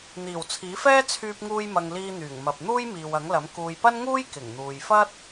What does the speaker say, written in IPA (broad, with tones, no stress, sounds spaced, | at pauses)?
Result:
n̪ iː˨˩ w t͡sʰ iː˨˥ f ɛː˥ t͡sʰ yː˧ p̚ ŋ uː˧ j m ɐ˨ ŋ l iː˧ n̪ yː˨˩ ŋ m ɐ˨ p̚ n̪ uː˥ j m iː˨ w ɐ˨˥ ŋ l ɐ˨˥ m k uː˨ j p ɐ˥ n ŋ uː˥ j k ɪ˨˩ ŋ n̪ uː˨ j f ɐ˥ t̚